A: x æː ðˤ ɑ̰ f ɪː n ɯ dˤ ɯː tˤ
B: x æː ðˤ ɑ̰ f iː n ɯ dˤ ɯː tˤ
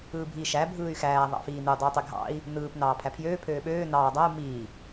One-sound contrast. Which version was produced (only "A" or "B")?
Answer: B